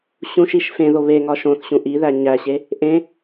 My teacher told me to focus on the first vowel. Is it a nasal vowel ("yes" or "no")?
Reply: yes